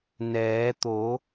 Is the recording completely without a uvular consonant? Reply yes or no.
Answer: yes